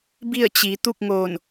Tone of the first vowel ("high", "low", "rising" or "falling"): falling